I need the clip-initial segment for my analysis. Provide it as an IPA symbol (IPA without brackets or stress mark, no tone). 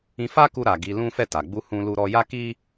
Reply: ĩ